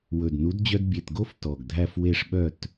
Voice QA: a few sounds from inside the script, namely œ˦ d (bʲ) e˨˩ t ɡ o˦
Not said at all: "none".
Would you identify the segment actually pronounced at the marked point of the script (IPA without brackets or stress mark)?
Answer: bʲ